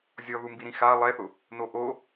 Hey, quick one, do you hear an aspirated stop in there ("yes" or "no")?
no